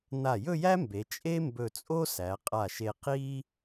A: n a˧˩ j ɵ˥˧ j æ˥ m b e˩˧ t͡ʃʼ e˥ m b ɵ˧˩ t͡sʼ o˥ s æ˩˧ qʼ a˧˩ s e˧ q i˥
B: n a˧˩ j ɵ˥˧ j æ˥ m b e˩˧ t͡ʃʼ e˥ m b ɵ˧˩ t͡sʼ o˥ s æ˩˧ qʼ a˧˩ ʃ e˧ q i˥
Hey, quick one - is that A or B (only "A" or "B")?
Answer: B